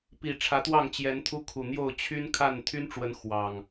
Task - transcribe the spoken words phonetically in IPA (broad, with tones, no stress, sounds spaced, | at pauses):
p i˨˩ ʈ͡ʂʰ ä˨˦ t̪ w ɑ˥˨ ŋ t͡ɕ j ɛ˨˦ n t̪ʰ u˦ kʰ u˨˩ n̪ j o˥˨ ʊ̯ t͡ɕʰ y˦ n kʰ a˥˨ n t̪ʰ y˦ n ʈ͡ʂ w ə˨˦ n x w ɑ˨˩ ŋ